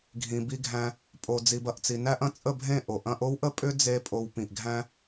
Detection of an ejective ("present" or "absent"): present